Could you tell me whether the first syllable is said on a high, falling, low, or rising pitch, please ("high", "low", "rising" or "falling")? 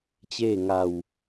falling